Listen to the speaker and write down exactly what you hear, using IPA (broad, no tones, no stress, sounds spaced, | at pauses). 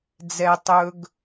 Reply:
d͡z ɛ tˤ ɵ ɡ